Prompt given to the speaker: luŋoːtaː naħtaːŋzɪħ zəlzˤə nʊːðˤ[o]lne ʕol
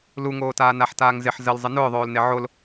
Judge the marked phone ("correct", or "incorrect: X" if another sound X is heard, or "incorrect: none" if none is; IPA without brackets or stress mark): incorrect: oː